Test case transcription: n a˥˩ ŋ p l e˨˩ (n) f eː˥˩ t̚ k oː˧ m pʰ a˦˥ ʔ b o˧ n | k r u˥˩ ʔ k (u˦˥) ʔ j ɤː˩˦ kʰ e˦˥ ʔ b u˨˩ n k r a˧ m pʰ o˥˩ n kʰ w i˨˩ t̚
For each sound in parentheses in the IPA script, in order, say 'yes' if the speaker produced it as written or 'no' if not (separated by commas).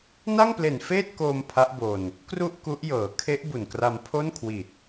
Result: yes, yes